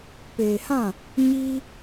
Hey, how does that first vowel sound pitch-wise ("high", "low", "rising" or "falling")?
low